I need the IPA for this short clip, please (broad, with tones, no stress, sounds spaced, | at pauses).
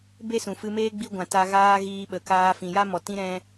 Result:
b e˦ s ũ˨ f ɨ˧ m eː˦ ɡ͡b i˧ ɡʷ ã˨ t a˧ ɣ aː˦ ɣ iː˧ ɓ ə˨ k aː˧ f ĩ˨ j a˦ m ɔ˨ t ĩ˦ ɾ ɛ̃˧